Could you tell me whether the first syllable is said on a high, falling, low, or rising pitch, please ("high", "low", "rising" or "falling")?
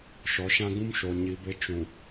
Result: rising